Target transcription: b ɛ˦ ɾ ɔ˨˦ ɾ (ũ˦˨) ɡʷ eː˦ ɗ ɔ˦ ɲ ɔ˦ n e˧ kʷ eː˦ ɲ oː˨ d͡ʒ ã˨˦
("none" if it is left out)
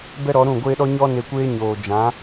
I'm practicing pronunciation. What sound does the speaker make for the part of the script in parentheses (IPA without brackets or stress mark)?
ũ˦˨